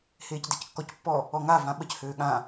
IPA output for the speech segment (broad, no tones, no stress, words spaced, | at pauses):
heːcdɛckːɔcpːɔ | ɔŋa vãɓəc høːɠã